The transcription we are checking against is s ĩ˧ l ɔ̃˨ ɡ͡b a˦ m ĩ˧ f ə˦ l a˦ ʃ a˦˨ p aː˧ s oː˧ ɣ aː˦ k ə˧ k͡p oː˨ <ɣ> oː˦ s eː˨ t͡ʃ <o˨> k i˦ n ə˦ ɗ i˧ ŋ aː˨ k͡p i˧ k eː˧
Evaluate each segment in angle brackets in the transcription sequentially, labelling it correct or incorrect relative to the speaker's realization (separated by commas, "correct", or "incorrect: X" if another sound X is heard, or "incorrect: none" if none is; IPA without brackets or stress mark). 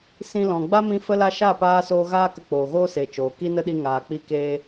correct, incorrect: oː˨